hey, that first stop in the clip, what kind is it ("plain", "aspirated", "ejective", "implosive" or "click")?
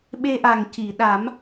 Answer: implosive